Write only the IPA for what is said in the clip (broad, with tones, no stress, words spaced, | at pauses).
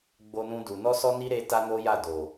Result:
ɡ͡bo˦nũ˦du˧ nɔ˦sɔ˦ni˦ ɾe˦ta˦no˦ja˦˨ do˨